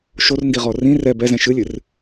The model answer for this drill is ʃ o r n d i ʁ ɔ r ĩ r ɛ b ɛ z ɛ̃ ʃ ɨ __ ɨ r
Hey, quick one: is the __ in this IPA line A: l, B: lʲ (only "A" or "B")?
B